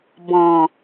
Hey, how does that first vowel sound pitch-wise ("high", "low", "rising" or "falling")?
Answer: low